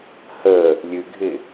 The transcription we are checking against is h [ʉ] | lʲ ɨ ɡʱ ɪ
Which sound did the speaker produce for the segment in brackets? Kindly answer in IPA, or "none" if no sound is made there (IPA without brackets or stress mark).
ə